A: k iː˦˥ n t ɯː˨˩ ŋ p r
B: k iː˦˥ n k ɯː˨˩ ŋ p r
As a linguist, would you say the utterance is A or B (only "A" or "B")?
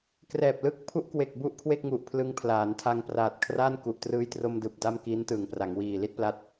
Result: A